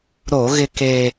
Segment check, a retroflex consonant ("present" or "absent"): absent